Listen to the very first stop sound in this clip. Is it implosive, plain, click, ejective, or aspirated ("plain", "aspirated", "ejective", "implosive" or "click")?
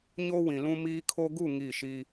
aspirated